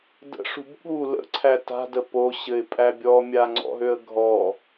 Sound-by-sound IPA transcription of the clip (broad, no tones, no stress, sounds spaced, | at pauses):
d ə̰ ʂ ṳ b ɠ u l ə̰ ǀʰ æ t a̤ d ə p o ɕ ɘ ɪ̯ pʼ æ bʲ ɔ mʲ a ŋ͡ǀ ɔ̰ ɦ ø ə̯ ɡʱ ɔ